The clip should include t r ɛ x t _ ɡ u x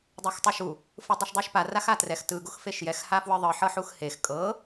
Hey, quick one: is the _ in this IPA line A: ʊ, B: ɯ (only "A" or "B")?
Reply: B